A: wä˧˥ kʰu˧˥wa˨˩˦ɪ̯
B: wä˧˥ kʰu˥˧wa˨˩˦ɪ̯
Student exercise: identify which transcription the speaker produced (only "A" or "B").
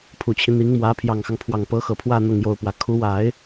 A